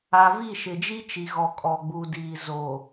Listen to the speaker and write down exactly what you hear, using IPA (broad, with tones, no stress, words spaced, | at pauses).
a˨vi˦˨ ʃɪ˨d͡ʒi˦t͡ʃi˨ɣɔ˨ kʼɔ˨ɡ͡bu˨diː˨ zo˨